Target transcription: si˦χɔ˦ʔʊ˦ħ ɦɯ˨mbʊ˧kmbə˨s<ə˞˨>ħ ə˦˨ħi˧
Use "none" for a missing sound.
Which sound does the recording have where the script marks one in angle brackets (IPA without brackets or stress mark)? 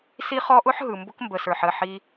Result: ə˞˨